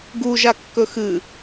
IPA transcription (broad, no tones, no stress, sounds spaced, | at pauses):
ɡ u ʒ a kː ɵ x ɨ